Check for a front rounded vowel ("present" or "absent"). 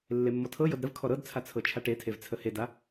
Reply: absent